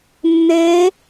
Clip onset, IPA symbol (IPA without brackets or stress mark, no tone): nː